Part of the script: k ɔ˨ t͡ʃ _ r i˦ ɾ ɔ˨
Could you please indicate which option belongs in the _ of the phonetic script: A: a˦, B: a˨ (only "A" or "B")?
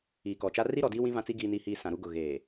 A